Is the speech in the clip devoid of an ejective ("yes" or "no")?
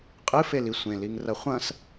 no